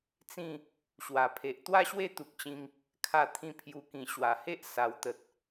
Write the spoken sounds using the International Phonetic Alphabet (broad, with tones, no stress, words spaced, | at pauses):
t͡sĩ˥˧ | ɕwa˨˩pʰe˨ʔ t̪wa˥˧ɕwe˥˧ t̪u˨k̚t͡ɕĩ˧ŋ | kʰa˥˧t̪ʰĩ˥˧pʰju˧ kĩ˨˩ɕwa˨˩he˦ʔ sa˨˩wt̪ə˨t̚